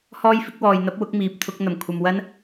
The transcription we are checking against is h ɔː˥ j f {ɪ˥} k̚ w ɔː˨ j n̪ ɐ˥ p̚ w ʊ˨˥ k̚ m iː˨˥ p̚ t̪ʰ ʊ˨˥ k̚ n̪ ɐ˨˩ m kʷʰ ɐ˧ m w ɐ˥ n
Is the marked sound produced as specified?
yes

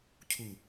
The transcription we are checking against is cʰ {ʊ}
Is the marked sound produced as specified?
no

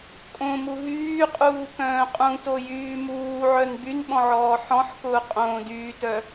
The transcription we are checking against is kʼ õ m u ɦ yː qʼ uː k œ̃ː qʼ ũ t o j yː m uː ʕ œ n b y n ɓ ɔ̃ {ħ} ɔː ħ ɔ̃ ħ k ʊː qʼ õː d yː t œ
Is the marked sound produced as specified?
no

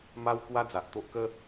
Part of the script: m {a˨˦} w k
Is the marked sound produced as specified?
no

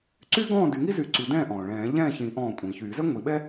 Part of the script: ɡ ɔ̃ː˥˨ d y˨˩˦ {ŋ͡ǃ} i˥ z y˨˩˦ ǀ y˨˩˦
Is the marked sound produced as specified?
no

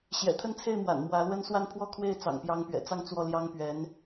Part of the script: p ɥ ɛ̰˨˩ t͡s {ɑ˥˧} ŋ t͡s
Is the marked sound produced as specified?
yes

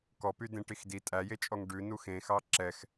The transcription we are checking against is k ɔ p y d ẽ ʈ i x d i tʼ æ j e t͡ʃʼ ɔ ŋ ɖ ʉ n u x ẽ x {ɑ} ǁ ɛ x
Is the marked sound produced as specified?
yes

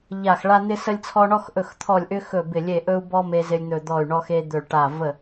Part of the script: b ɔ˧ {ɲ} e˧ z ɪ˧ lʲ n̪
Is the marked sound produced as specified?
no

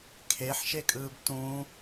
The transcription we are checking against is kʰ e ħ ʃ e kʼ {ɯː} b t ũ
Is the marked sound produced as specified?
yes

